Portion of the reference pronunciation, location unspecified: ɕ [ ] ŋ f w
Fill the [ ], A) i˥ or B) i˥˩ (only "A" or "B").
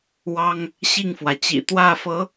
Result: B